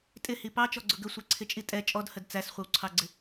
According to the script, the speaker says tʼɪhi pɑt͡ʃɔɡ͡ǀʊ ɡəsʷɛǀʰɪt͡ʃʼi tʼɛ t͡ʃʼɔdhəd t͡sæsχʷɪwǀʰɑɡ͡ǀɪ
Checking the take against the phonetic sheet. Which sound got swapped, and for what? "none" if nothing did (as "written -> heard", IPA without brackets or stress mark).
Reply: none